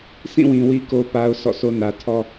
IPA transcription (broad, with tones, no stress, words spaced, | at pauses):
sʰĩ˦˨wĩ˨ wi˦ko˦ pa˦ʊ̯sʰɔ̰˦˨so˦ nä˨tʰɔ˦